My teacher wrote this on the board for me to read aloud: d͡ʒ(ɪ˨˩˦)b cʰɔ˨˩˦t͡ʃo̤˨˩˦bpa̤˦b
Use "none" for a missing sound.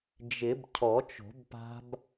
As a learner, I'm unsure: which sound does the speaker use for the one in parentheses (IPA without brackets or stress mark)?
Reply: ɪ˨˩˦